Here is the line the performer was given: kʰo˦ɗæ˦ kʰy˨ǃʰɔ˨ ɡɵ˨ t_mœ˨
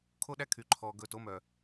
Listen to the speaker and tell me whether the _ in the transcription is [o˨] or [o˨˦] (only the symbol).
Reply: o˨˦